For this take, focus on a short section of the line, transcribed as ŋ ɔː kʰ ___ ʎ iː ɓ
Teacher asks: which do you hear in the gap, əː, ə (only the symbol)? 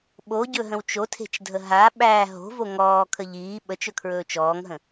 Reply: ə